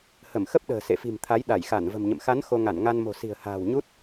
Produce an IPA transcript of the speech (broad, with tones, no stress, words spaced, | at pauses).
hə˧˩mxə˦˥p̚ɗə̤ː˨˩ sḛ˧˨fi̤˨˩mt̪ʰa˨˦j ɗa˧˩jxa˧˩nvə̤˨˩mɲə̰˧˨m xa˨˦n xo˧ŋa˧˩nŋa˧n mo̤˨˩si̤˨˩ə̯ha̤ː˨˩w ɲu˦˥t̚